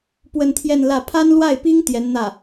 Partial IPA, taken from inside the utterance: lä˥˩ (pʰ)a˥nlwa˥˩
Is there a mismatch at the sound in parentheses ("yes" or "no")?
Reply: no